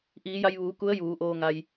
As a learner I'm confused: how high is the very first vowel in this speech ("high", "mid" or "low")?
high